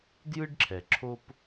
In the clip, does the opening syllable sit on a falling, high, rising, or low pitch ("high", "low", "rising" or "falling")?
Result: high